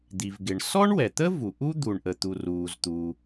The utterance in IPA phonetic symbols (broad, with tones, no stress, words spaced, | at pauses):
d̪i˩vɡɪ˩ɳ sɔ˥ɳwɛ˩t̪ə˥ vu˩ʔu˥ d̪u˩ɳʔə˩t̪u˩ ruː˩zt̪u˩